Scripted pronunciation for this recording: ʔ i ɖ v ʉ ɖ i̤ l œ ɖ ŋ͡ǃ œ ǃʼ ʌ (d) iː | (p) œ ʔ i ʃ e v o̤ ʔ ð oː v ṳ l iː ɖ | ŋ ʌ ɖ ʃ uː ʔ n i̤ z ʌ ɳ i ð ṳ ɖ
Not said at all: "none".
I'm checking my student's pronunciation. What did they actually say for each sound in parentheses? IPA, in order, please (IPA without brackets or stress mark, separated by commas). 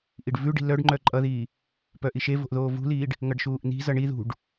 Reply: ð, p